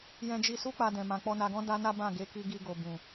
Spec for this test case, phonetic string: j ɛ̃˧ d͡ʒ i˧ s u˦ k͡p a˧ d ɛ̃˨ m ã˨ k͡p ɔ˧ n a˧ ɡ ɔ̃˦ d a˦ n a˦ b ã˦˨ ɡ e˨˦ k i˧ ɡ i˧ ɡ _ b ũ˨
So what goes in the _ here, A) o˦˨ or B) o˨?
B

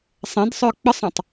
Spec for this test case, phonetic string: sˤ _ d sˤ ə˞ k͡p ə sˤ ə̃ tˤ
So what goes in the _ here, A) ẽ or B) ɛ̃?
B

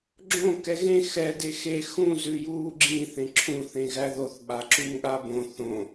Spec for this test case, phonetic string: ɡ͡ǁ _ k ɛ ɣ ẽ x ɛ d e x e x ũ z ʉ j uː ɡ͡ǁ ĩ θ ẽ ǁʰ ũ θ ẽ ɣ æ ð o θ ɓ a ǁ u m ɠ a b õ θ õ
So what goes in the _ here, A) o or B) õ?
B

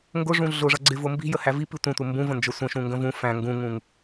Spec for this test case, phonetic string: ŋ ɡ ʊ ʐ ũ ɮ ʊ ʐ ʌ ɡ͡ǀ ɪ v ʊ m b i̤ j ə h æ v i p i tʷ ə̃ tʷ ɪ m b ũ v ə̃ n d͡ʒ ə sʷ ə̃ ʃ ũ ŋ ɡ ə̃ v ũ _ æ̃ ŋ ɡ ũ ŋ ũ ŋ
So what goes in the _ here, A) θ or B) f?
B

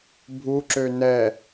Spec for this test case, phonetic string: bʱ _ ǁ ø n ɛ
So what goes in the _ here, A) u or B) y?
A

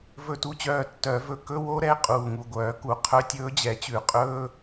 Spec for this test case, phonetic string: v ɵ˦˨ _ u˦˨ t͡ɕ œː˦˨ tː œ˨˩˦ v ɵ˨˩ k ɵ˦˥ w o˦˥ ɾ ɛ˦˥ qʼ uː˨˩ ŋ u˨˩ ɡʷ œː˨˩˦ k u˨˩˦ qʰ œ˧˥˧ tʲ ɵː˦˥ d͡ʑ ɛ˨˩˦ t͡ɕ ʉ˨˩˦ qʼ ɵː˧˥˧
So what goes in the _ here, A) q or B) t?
B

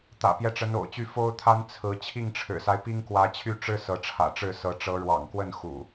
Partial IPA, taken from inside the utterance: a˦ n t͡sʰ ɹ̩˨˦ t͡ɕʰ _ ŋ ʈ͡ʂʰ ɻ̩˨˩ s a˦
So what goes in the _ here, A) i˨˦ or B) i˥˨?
B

